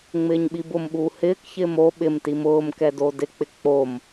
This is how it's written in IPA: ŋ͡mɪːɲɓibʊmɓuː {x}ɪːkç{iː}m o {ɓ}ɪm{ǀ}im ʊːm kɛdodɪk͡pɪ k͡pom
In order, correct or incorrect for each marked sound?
incorrect, incorrect, correct, incorrect

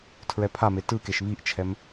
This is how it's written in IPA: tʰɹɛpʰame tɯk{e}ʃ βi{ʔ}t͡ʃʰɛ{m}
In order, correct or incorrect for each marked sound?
correct, correct, correct

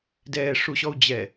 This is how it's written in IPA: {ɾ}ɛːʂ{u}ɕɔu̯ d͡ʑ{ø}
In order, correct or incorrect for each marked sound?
incorrect, correct, incorrect

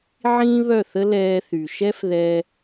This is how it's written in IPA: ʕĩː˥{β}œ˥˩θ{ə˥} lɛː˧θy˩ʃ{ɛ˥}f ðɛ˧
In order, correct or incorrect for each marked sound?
correct, correct, correct

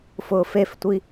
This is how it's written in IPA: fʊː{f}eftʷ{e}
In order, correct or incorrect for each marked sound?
correct, incorrect

